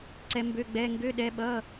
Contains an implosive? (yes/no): yes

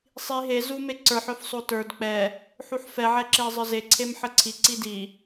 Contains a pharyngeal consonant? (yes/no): yes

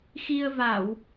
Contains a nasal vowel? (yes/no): no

